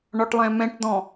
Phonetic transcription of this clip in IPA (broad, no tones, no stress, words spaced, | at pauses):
ɳɔʈlˠɛ̃mɛ̃ʈd̪ɔ̃